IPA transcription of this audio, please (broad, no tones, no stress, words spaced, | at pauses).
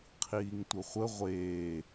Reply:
qʰiːŋtʷəχʷə ʁʷeː